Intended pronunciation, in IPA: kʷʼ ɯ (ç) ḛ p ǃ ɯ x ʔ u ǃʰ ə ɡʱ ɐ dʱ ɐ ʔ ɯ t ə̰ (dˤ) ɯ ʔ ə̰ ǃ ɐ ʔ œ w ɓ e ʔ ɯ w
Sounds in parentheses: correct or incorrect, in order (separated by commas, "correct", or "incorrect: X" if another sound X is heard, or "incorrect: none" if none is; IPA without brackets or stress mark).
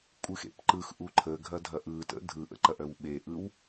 incorrect: x, incorrect: dʱ